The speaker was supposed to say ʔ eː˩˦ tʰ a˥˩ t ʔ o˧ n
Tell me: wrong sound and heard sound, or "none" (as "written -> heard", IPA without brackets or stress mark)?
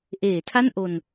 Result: t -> n